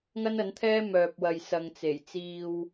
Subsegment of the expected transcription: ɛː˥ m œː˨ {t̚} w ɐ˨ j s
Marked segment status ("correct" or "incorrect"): incorrect